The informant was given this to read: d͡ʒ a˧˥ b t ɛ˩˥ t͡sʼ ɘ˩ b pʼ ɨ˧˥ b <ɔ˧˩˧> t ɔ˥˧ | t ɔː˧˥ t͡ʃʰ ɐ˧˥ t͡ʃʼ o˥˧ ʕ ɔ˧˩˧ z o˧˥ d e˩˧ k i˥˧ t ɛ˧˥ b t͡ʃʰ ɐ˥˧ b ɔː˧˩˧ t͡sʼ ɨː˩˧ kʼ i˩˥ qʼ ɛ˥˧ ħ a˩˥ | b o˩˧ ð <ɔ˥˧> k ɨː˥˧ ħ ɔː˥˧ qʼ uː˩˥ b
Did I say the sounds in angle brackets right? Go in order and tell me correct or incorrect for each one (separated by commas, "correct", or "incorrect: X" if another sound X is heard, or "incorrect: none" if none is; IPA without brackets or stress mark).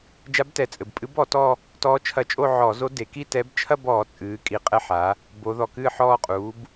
correct, incorrect: ɔ˩